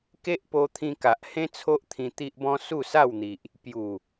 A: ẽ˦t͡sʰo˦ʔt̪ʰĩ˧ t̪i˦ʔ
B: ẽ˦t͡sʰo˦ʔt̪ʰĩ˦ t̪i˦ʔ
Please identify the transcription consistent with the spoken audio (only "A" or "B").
A